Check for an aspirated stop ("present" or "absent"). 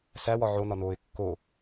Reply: absent